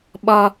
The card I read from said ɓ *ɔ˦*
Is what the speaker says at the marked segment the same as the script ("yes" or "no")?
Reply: yes